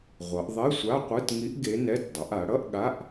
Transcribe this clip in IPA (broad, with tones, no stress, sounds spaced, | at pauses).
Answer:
ʁʷ ʌ˩˧ ʔ ðˤ e˧˥˧ sʷ a˧˥˧ qʷ ɯ˧˥˧ t ŋ i˧˥ ʔ ɡ e˧˥ n ɛ˧˥˧ t dˤ ʌ˩˧ ʔ a˩˧ ɽ ʌ˧˥˧ ʔ ɠ a˧˥˧ ʔ